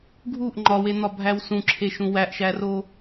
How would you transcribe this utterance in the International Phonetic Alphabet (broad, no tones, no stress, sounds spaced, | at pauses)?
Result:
ɡʱ u ʔ ŋ͡ǃ ɒ w e n̪ ɒ bʱ æ w s ũ ǁʰ e ʃ ũ w æ ʔ ʃ æ r o